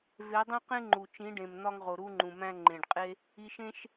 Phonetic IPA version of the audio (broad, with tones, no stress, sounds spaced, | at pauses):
v e˨˦ dˤ ẽ˦ q ẽ˦ ŋ͡ǃ u˨ t͡ʃ ĩ˨˦ ɖ ẽ˨ m n̪ ɒ˦ ŋ ʁ o˨ ɾ u˦ ŋ͡ǃ ũ˨ m æ̃˦ ŋ͡ǃ ẽ˨ ɖ qʼ e˦ | i˧ ʃ ẽ˦ ʃ